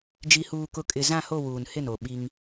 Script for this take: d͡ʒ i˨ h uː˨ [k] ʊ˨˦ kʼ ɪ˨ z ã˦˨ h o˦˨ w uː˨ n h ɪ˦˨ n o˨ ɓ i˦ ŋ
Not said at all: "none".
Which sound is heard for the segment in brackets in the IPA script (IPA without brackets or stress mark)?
k